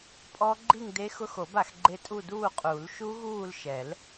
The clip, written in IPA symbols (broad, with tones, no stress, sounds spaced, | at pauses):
pʼ ɔ˦˥ ɡ͡ǃ i˥˧ ŋ d e˦˥ x ʊ˦˥ x o˨˩˦ b a˨˩˦ x ɡ͡ǃ e˦˥ tʼ u˥˧ d uː˥˧ qʼ u˨˩˦ l ʃ u˦˥ ɣ uː˥˧ l ʃ ɛ˨˩˦ l